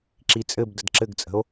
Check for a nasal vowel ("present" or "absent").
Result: absent